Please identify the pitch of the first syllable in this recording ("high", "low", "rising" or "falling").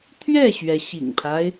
falling